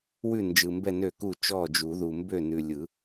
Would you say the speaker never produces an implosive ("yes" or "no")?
yes